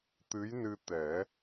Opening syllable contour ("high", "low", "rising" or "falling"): rising